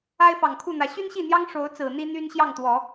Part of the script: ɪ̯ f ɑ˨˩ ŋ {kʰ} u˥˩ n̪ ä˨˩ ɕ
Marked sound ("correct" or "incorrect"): correct